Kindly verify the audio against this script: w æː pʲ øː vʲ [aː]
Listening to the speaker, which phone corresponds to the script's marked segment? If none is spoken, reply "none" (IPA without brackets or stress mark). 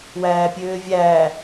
æː